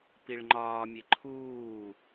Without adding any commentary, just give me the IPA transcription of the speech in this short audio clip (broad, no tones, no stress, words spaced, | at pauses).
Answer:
piɭŋ͡ǃɒːmʲe ǃʰuː